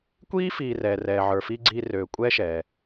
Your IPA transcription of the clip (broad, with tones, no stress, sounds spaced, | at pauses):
kʷ iː˦ f iː˨ r ɛː˨ r ɛː˨ ʕ ə˞˨ f iː˥ ɡ͡ǀ iː˦ r øː˨ kʷʼ ɛː˦ ʃ ɛː˩